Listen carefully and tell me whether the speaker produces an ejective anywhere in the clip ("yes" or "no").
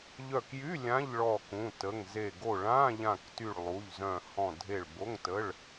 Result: no